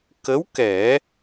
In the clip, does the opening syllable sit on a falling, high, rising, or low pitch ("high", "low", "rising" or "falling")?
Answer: rising